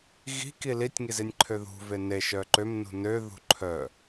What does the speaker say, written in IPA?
ɣi̤ki litʲŋizinʲ ǃʰøðṳve ne ʃœǃøm nṳnø ðṳǃʰœ

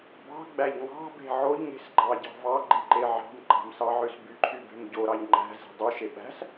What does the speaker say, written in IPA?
bɑ̤ɡ͡bæʎ ŋɑ̤be̤ ʕoʎŋe̤s ɡ͡ǃɑɟɑ̤vɑɡ͡ǃi ǃeʕɑ̤mǃɑ̤m sɑʕøsbyǃʰy be̤mɟoɾɑʎ ŋ͡ǃæ̤ ze̤dˤuʃe ɓæ̤s

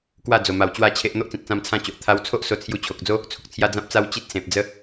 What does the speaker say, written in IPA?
kwa˥˧d͡zo˨˩ma˨˩w t͡ɕwa˥˧t͡ɕʰe˦ʔ n̪o˦ʔt͡sĩ˨t̚t͡sã˧m t͡sʰã˥˧t͡ɕo˨ʔ t̪ʰa˧wt͡sʰo˦ʔ so˦t͡sʰju˥˧ t͡ɕʰo˨k̚d͡zo˦ | t͡sʰu˨k̚t͡sʰja˦ d͡zã˦p̚t͡sa˦w t͡ɕi˦t̚ sẽ˨p̚d͡zə˦

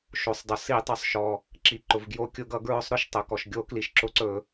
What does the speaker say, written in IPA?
ʃo˩sˤdˤo˩ si˧˩˧tˤɵ˩sˤʃɔ˩ | ǁi˩ ǃʊ˩vɡjo˧˩˧kʲʊ˧˩˧ɡʌ˧˩˧ ɡɹʊ˧˩˧sˤɾʊ˩ʃ tˤɵ˩kɔ˩ʃ ɡʲo˧˩˧ kli˩ʃǁʊ˧˩˧ǀɵ˧˩˧

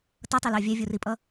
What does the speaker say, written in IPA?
tʌtˤilɑ vʲɛvʲuripʼʌ

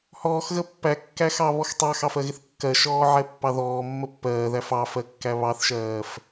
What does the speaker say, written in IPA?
hɔːxɣə pːækːæxɑβɔx tˤɑxɑfɜɣɪθ kːɜʃɔːʕɛpːɑ ðɔːmːə pːɜːðæf ɑfɜkːæ βɑθʃɜːf

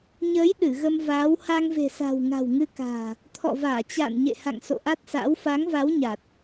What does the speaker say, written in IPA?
ɲəː˨˦j ɗɨ˧˩ɣə˧mvaː˨˦w ha˧ŋve̤˨˩sa̤˨˩w ŋa̤˨˩wŋɨ˧ka̤ː˨˩ | t̪ʰɔ̰˧˨vaː˧˩t͡ɕa̰ː˧˨n ɲḛ˧˨ha̰˧˨ŋ so̰˧˨ʔa˦˥t̚sa̰˧˥w fa˨˦ŋva˨˦w ɲa˨˩t̚

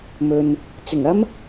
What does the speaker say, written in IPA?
mɵ˨n | t͡sɪ˨˩ŋɐ˥m

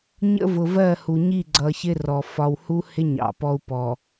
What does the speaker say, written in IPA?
ɲə̰˦vʊ˨vɜ˦˨hu˨ ɲi˦˨ɡ͡ǀʌ˨ çɪ˦rɔ˨ fɒ˨whu˦hɪ˦ ɲɑ̰˨pɔ˦u̯pɔ˨

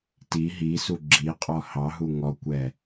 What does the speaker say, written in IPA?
ti ɦisu ɡ͡ǁi qʼɔhɑɦu ŋɔkʷɛ

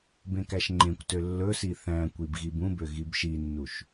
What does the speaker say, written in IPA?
bẽkæʃŋ͡ǃẽkʷtø lːɵsi θæ̃kʷib ɣibũbø ɣibʃinːuʃ

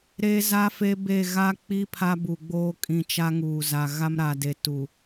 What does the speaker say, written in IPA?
ɾe˦ za˦fe˦be˦˨ ɣa˦k͡pi˦ pʰa˦bu˨ɡ͡boː˦ kʼĩ˨t͡ʃa˦ ŋuː˨za˨ ɣa˦mɾa˨de˨tu˨

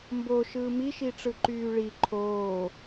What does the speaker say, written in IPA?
mboʃɯː miʃiʈ͡ʂɯ ǃyːɭi ǃʰoː

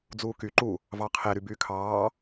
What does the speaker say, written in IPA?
d͡zuːky ǃu | vɑqʰe ɾybyːkʰɑː

